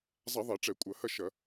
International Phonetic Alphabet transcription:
zˤ a˧˩˧ ðˤ ɛ˧˩˧ ʈ͡ʂ ɛ˧˩˧ kʷʼ ɐ˧˩˧ h ɐ˥˨ ʃ ɐ˧˩˧

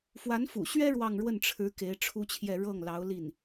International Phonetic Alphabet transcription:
f w a˧˥ n f ṵ˨˩ ɕ ɥ ɛ˥ ɻ w ɑ˥˧ ŋ ɻ w ə˥˩ n ʈ͡ʂʰ ɻ̩˧˥ k e˧˥ ɪ̯ ʈ͡ʂʰ u˥ t͡ɕʰ j ɛ˥˧ ɻ ɤ˥˩ ŋ l ɑ˧˥ ʊ̯ l i˥˩ n

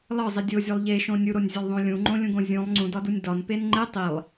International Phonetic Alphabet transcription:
l ɒ zˤ i dʲ o zʲ o lˠ ʎ e ʃ õ nʲ u ɾ o nʲ zʲ e lˠ ðˤ õ lʲ ũ ŋ͡ǃ õ lʲ ũ ɡ õ zʲ ũ lˠ ŋ͡ǀ ũ d ɒ d u nʲ d ɒ n p e n ŋ͡ǃ e tˤ i lˠ

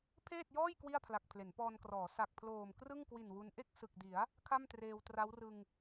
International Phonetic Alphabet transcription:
pʰ eː˥˩ t̚ j ɔː˥˩ j k w i˥˩ a̯ pʰ l a˨˩ k̚ pʰ l e˩˦ n p ɔː˧ n k r ɔː˩˦ s a˨˩ k̚ pʰ l oː˨˩ m k r ɯ˥˩ ŋ k w i˨˩ n w u˦˥ n ʔ e˥˩ k̚ s ɯ˨˩ k̚ d i˩˦ a̯ | kʰ a˥˩ m t r eː˧ w t r a˦˥ w r ɯ˧ ŋ

